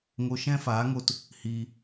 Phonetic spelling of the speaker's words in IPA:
ŋ o˧ ʃ ɛ̃˦ f aː˨˦ ŋ o˧ t | h iː˦

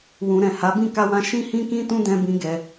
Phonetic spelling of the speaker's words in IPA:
w ũ˨ ɾ ɛ̃˨ h a˨˦ b ĩ˦˨ k a˧ w ã˧ ʃ ĩ˧ h ĩ˧ k ĩ˧ t ũ˦ d ɛ̃˧ b ĩ˦ ɡ ɛ˦

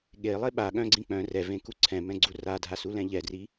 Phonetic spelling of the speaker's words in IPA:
ɠ e lˠ e ɓ a ɠ œ̃ ɡ͡ǀ ĩ k͡p œ̃ r ɛ v ẽ k u ǀʰ ɛ̃ m ɛ̃ ɡ͡ǀ u r a dʱ a s u l ɛ̃ ʎ ɛ d r i

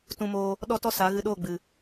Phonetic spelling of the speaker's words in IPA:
t ũ˧ m oː˧ | ɗ ɔ˦ t ɔ˦ s a˨˦ ɣ ɨ˧ ɗ oː˦˨ ɡ͡b ɨ˨

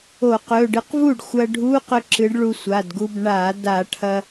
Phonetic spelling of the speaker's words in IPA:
o˧˩˧ q ɵ˩˧˩ ɖ ɨ˨˥ q v u˥˩ ɖ xʷ ɐ˧ ɖʱ u˧˥˧ q ɵ˧ ǁ ɨ˨˥ ɖ ɭ u˧ sʷ a˩˧˩ d ɡ u˧ b ɳ a˧˩˧ d a˧˩˧ ʈʰ ɐ˧

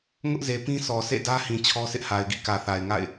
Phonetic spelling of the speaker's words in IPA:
ŋ ʊ˦ ʔ z e˨ p ĩ˦ s ɔ˨ s ḛ˦˨ d ä˦ h ĩ˨ t͡ɕʰ ɔ˦ sʰ ɪ˦ ʔ h a˨ ɪ̯ ɡ ḭ˦˨ k ä˨ θ a˨ ɪ̯ ŋ a̰˦˨ ɪ̯

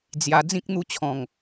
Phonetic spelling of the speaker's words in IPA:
d͡z j a˧ d͡z ĩ˦ k̚ n̪ u˥˧ t͡ɕʰ ɔ̃˨˩ ŋ

